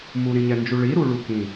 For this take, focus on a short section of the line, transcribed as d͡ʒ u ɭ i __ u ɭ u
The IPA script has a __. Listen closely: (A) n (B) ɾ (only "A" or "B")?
B